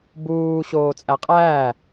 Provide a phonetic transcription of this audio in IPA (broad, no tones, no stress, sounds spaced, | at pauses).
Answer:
b uː ɕ oː t͡sʼ æ qʼ æː